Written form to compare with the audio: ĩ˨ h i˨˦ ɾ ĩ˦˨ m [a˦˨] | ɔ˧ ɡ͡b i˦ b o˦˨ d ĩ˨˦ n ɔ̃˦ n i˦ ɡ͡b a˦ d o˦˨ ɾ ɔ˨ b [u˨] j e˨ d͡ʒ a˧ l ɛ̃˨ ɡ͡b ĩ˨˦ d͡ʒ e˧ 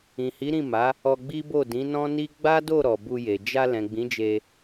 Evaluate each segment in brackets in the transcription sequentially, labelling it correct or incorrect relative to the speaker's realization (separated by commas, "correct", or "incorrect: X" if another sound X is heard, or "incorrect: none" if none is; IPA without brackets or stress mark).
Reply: incorrect: a˨˦, incorrect: u˧